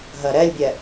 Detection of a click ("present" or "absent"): absent